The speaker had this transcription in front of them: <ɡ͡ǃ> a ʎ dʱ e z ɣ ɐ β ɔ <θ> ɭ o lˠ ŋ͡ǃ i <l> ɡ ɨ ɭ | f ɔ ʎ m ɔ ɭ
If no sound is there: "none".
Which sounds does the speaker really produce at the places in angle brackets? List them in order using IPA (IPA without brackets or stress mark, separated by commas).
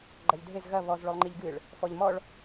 ɡ͡ǃ, z, ʎ